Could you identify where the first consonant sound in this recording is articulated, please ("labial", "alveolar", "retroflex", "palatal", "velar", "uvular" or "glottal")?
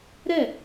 alveolar